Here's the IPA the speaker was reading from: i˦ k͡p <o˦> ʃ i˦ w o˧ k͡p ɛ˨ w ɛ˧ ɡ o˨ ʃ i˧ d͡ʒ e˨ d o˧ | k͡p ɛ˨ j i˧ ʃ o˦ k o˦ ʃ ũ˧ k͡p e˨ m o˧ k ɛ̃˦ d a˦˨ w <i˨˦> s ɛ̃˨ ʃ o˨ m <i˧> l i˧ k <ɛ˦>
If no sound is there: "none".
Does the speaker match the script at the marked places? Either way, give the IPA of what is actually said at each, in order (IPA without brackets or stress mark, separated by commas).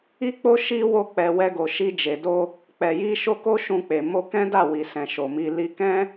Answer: o˦, i˨, i˨, ɛ̃˦